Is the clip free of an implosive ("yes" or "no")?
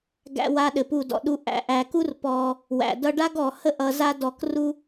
no